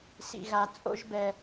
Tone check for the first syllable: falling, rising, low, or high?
low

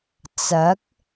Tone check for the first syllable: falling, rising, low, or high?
rising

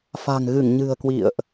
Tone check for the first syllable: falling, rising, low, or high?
low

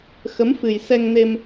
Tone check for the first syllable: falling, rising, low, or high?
rising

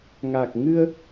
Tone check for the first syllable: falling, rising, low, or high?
low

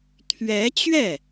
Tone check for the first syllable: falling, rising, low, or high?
rising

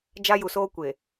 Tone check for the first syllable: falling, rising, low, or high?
high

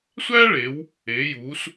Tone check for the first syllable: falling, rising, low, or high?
high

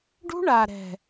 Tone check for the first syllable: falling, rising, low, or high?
high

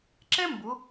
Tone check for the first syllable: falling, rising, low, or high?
high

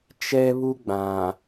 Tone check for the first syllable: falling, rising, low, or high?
high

